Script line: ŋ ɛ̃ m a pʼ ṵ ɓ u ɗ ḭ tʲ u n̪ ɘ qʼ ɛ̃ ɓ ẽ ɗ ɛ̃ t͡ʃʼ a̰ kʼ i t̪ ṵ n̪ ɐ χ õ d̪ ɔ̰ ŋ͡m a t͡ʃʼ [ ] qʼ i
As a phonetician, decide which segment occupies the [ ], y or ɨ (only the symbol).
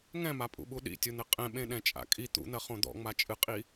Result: ɨ